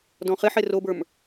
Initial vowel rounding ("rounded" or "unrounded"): rounded